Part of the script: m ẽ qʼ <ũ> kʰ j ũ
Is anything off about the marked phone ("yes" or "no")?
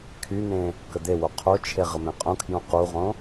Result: no